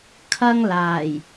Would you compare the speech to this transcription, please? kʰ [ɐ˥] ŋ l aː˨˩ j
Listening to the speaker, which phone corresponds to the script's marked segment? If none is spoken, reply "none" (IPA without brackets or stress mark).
ɐ˥